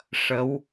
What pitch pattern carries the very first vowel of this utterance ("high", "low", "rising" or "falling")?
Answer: rising